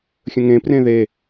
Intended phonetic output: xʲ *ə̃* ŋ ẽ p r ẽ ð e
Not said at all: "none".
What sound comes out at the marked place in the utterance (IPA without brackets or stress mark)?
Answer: ə̃